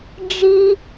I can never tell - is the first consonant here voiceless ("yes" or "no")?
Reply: no